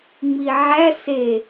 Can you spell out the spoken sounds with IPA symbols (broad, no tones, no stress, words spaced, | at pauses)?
ŋ͡miʕæ se